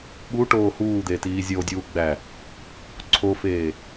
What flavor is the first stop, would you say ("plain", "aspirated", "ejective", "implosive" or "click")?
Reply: implosive